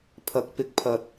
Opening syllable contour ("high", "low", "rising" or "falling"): low